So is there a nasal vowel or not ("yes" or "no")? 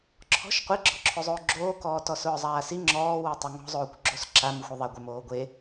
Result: no